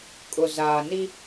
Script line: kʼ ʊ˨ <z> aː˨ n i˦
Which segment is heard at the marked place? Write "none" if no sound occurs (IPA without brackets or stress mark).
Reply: z